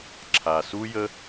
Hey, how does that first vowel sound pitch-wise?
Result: low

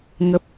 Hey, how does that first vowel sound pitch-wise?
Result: low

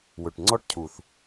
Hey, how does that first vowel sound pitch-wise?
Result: low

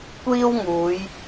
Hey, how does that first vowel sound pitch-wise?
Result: high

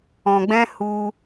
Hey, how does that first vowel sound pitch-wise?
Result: low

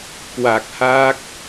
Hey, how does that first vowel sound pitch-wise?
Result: low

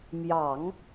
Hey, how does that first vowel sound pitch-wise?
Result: low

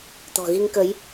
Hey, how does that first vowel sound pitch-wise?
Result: low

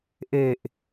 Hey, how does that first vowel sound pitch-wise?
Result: low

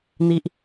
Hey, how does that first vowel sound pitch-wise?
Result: high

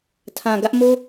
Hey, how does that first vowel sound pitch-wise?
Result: low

